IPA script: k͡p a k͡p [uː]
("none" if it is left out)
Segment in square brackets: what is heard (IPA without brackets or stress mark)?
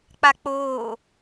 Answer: oː